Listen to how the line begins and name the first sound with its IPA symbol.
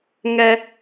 ŋ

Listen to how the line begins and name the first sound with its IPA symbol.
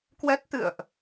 k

